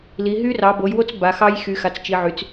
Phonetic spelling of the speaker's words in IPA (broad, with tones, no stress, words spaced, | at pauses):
li˨˦ ɦy˦˥rɑ˨˦bo˨˦jwo˦˥t͡s ba˨˦xɑ˦˥jxy˨˦xa˨˦t͡s t͡ʃi˨˦ʕy˨˦t͡s